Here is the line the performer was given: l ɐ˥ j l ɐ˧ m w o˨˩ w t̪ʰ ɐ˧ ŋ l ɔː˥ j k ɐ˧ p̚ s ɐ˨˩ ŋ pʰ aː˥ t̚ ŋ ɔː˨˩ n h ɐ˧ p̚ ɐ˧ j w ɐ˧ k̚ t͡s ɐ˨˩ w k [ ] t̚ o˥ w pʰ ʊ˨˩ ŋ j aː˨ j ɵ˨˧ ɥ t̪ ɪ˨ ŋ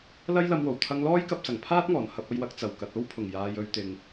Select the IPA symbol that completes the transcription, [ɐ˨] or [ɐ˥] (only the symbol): ɐ˨